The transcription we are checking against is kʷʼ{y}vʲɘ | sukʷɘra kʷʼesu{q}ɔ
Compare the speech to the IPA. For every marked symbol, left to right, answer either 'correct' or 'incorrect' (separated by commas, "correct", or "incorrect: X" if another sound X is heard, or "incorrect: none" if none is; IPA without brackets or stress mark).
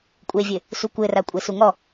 incorrect: e, incorrect: ŋ